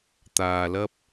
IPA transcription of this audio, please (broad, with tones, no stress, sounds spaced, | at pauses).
t̪ aː˧ l ɐ˥ p̚